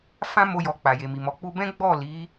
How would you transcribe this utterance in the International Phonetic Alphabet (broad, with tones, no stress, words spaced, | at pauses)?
fã˦mo˧jɔ˨ k͡pa˨je˨mi˨mɔ˨˦ k͡pu˧bɛ̃˦ ɡ͡bɔ˦˨li˨˦